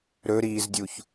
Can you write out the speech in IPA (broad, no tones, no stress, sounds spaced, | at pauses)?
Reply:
ɾ ɵ ɾ iː z dʲ u ç